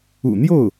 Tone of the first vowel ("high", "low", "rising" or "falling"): low